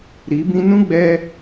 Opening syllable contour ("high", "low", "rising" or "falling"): rising